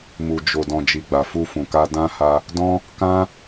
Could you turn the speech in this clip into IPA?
m u˨ d͡ʒ o˨ d ɔ̃˨ d͡ʒ i˨ ɡ͡b a˨ f u˧ f ũ˨ k a˧ d ã˦ h a˧ | d ɔ̃˦ | k ã˦

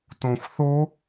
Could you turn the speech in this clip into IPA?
t õ xʷ θ o

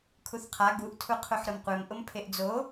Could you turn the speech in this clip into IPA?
kʰ u θ qʰ a ɡ u ʔ tʰ u qʰ u ħ ɾ ʊ m qʷ e m ʔ ʊ m pʰ e ʔ d͡z o

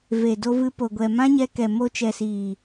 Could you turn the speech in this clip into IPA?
v e˨ d o˧ v ɨ˧ p o˨ ɡʷ ɛ˨ m ã˦ ɲ ɛ˧ k ɛ˨ m o˧ t͡ʃ ɛ˨ s iː˨

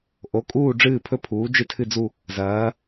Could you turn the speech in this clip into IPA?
ʔ o˩˥ kʼ uː˥˨ ɖ͡ʐ ɨː˥˨ pʰ ɵ˥˨ pʰ uː˩˥ d͡ʒ ɨ˥˨ tʰ ɨ˥˨ d͡z u˥˨ | z ɐː˩˥

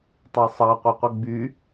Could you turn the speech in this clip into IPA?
tˤ ɑ sˤ ɑ qʷ ɛ qʷ ɛ ɡ͡b y

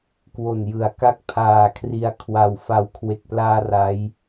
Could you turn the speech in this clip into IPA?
k w o˨˩ n j ɯ˩˦ a̯ k a˦˥ k̚ pʰ aː˨˩ kʰ r i˧ a̯ kʰ w a˧ w f a˨˩ w kʰ w e˨˩ k̚ p l aː˧ r a˦˥ j

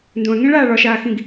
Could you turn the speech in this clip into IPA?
n d õ ɐ̯ ŋ ẽ ɭ aː ɭ ɒ ʃ aː x ĩ ɡ

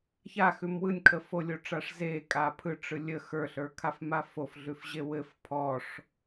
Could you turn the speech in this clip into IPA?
ç a x ʉ m w ɯ nʲ kʰ ə f o lʲ o ʈ͡ʂ a ʂ z e kʼ a pʰ ɯ ʈ͡ʂ ɯ lʲ ə x ə˞ ɬ ə˞ kʰ a f m a f o f ɮ ʉ f ʑ e w ɘ f pʰ ɔ ʂ

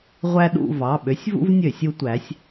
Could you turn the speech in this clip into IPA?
ʁʷ æ˦ ɗ ṵ˦˨ v ɑ˩˧˩ ɓ ø˨˥ sʲ v ṵ˦ v nʲ ø˧˩˧ sʲ u˦ tʷ æ˨˥ sʲ

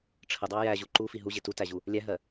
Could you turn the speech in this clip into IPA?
ʈ͡ʂʰ ə dˤ ɑ j æ ʑ u ǃ u f i ɦ u ʑ ɪ t u t æ ʑ u | lʲ æ ɦ ɜ

